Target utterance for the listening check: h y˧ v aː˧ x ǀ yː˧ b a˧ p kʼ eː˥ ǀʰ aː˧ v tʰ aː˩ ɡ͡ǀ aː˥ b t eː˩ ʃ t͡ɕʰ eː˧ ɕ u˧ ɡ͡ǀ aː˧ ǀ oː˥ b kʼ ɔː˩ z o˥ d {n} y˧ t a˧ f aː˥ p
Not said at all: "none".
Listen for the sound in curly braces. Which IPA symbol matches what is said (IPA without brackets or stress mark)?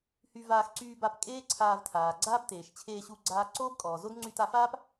ŋ͡ǀ